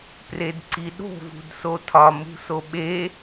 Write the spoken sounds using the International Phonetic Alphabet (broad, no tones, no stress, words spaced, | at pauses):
predǀiɗo̤ vṳdsotʰɒ mṳsoɓe